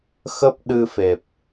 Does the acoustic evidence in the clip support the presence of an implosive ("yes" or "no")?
yes